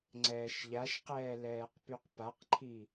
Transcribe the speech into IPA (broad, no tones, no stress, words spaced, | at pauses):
ŋ͡ǀɛːʃʎaʃqɛː lɛːqpyqpaqǃʰi